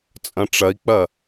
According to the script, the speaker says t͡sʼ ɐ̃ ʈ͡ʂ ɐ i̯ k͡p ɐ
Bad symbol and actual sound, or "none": none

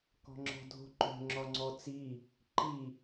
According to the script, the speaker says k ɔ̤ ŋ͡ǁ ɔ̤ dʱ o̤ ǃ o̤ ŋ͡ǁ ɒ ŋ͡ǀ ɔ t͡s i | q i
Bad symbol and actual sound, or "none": q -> ǃ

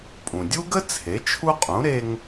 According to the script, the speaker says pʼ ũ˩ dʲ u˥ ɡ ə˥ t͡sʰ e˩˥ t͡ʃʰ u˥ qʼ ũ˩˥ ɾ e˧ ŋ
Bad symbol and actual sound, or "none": none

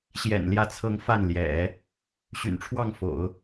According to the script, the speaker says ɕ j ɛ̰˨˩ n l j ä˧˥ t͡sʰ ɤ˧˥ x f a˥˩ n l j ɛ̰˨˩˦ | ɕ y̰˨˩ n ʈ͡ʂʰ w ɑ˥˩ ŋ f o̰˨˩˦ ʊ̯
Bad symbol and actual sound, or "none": x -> ŋ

